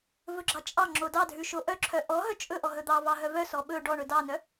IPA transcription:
v ɵ ɡ͡ǁ ɑ t͡ʃʼ ɑ ŋ͡ǁ o d ɑ dʱ ʉ ʃ o ʔ œ ǁʰ œ ʔ ɔ ɦ œ t͡ʃʼ ɵ ʔ ɔ ɦ ɵ d̪ ɑ v ɑ ɦ œ v œ s ɔ ɓ ɵ ɖ ɔ ɳ ɵ d ɑ n œ

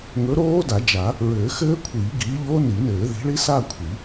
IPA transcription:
ŋ ɵ˨˥ ɾ oː˦˥ d a˨˩˦ d͡ʒ a˨˩˦ | ɹ ɘː˨˩˦ x ɘː˦˥ kʷʰ iː˨˩˦ ɡ iː˨˥ ʎ oː˦˥ n i˨˩˦ n ɘː˨˩˦ ð i̤˨˥ ɭ i˦˥ s a˥˧ kʷʰ i˨˩˦

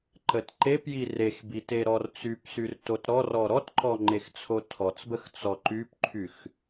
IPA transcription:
ǃ ə t ǃ e p j i r e x b i t e ɾ ɔ r t͡s y p s y r t o t ɾ ɔ r ɔ ɾ ɔ t ǃ ɔ ŋ͡ǃ e x t͡sʰ o tʰ ɔ t͡s b ə x t͡s ɔ ǃ y p ǃʰ y x

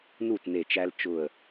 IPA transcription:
n u˥˩ t n e˧˩ t͡ʃ æ˦ l t͡ʃ ʊ˧˩ ə̯

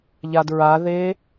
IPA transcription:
ʎ a d ɹ a ð e

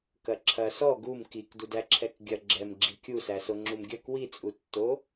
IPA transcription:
k ɐ ǁʰ ɐ s ɔ ɡ u m k i k d u d æ ǁʰ ɛ k ɡʲ ɐ ɡ͡ǁ ɛ m ɡ͡ǁ i kʲ u s æ s o ŋ͡ǁ u m ɡʲ ɐ k w i t͡sʼ u tː o

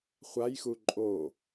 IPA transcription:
χʷ a j x u ǃʼ o

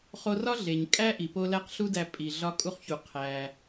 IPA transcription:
χ o˧ r ɒ˥ ɮ e˩ ɲ kʼ æ˥ ʔ i˩ p o˧ l æ˥ q ɬ u˥ d æ˧ pʼ i˩ ɮ ɒ˧ kʼ u˧ χ ç u˩ qʰ æ˩

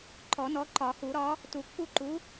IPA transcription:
ǃ ɔ˨˩˦ n ɔ˨˥ ǃ ɒ˨˩˦ h u˨˩˦ ɾ ɒ˨˥ | t u˨˩˦ kː u˦˨ ǃ u˨˥

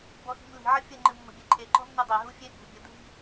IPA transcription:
b ɔ x i̤ m l i̤ ʕ ə fʲ ə ŋ͡ǃ ɨ mː ə̤ bʲ e ǃʰ e ǃ ɔ̤ nː u dˤ e ɦ u fʲ e bʲ ṳ bʲ ə dʱ i̤

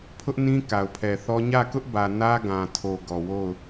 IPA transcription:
pʰ ʊ˦ ʔ n ĩ˦ k a˨ ʊ̯ pʰ ɛ˨ θ ɔ˦ ɲ ä˦˨ k ʊ˦ ʔ b ä˨ n ä˦ ɡ ã˨ tʰ o˨ ɡ ɔ˨ w o˦˨ ʊ̯

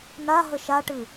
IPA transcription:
n a ɦ ə ʃ a ʈ ɨ

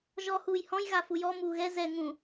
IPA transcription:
ʒ ɔ h uː j h ɔ̃ j ɣ a f u j ɔ m uː ɣ ɛ z ɛ ŋ ũ

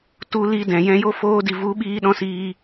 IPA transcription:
t u˧ l i˧ d ɛ̃˨ j ɛ̃˧ j o˦ f oː˧ d i˨ v u˨˦ ɓ iː˧ ɗ ɔ̃˧ s iː˧

